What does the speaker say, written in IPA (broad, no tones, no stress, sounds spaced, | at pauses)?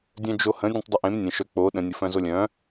dʲ œ̃ d͡ʒ o h ə̃ dʲ ẽ tˤ dˤ ə ʔ ẽ m nʲ ə̃ ʃ œ k͡p o ɗ ə̃ nʲ ə f œ̃ z o lʲ œ̃